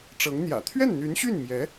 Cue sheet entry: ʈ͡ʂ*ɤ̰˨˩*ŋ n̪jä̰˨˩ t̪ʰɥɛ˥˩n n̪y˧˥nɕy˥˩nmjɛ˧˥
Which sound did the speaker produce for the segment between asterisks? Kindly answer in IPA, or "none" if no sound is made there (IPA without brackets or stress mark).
ɤ˧˥